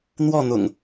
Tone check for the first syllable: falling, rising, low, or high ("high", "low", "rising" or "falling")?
falling